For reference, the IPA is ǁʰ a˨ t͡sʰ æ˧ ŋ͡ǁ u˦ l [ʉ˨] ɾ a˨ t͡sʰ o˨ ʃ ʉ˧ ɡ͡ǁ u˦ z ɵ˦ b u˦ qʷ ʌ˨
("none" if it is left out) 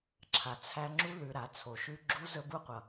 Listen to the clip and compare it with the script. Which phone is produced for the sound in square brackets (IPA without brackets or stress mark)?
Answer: ʉ˨